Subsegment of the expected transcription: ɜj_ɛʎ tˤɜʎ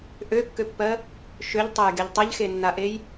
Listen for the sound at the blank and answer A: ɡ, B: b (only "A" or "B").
A